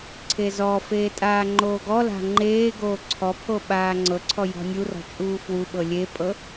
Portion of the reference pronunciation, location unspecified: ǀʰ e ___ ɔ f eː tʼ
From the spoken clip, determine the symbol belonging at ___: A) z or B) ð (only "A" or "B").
A